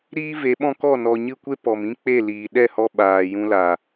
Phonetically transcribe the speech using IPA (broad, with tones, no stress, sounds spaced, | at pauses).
ɾ iː˦ v e˨˦ ɓ ɔ̃˦ k ɔ˦˨ n ɔ˨ ɲ ɨ˦˨ kʷ e˦ p ɔ˨ m ĩ˦ k͡p e˦˨ l iː˨ ɗ ɛ˦˨ h ɔ˧ ɓ aː˨ j ũ˧ l a˨